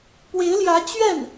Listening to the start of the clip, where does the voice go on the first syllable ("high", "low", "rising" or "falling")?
rising